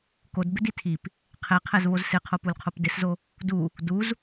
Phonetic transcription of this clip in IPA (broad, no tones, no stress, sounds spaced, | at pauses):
k o d b ɪ d i tʰ i p | qʰ ɛ qʰ ɛ z β o z s ɪ qʰ o p u l qʰ o p d ɪ s z o | d u | d u z